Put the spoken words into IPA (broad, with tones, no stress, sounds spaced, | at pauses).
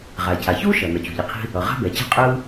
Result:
ʁ aː˩ cʰ a˩ ç uː˥ ʃ ʌ˩ n ʌ˩ t͡ɕ ṳ˩ ʎ i˩ qʰ i̤˥ | ʌ˩ ʁ a̤˥ b ɛ˩ t͡ɕ a̤˥ qʼ ɯː˥